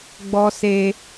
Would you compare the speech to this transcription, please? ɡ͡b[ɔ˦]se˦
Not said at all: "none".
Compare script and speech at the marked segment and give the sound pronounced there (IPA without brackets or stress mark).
ɔ˦